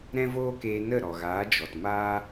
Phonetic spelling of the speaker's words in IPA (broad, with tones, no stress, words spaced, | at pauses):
ɾɛ̃˦voː˦keː˧ nə˦˨ɾɔ˨ɣaː˨˦ d͡ʒɔ˨t maː˦